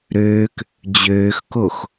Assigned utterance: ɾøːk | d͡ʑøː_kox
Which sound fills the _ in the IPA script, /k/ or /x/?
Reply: x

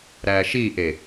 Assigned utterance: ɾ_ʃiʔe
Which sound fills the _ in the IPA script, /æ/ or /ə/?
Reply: æ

